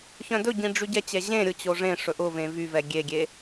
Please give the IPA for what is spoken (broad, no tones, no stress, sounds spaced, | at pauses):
ç œ̃ d ɵ ɟ ĩ ɖ͡ʐ y ɟ ɛ t͡ɕ ɛ ʑ ẽ ɾʲ ʊ t͡ɕ o ʐ ẽ ʂ ɵ ʔ ʊ v ẽ v y v ɛ ɡʲ e ɡʲ e